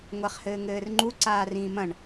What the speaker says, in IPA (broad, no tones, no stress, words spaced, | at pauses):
ŋʷaχhɘːŋɘːrŋ͡ǃu ǀaːrĩːmɐ̃ɳ